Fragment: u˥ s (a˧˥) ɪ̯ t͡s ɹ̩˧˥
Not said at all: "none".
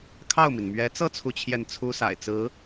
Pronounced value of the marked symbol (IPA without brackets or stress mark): a̰˨˩